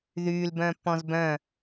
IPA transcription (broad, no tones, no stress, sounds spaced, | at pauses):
ð yː l b œ̃ː pː ɔ̃ z b œ̃